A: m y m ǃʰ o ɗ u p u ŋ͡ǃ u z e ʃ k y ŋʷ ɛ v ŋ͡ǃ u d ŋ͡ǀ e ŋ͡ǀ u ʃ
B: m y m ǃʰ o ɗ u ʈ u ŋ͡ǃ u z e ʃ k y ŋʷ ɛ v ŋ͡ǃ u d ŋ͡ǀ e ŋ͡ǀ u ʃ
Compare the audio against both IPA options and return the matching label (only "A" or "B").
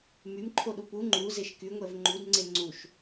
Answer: A